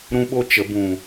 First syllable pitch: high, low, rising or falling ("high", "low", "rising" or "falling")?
high